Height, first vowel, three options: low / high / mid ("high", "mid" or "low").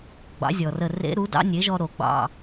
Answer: low